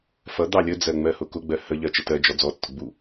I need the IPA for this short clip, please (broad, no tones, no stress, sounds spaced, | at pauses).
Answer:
f ʌ d̪ ɑ lʲ ə d͡z ɜ ŋ͡m ɜ h ʊ k ʊ ɡ͡b ɜ h ə ʎ ɜ t͡ʃ ə t ɜ d͡ʒ ɔ d͡z ɔ tː ʊ ɡ͡b u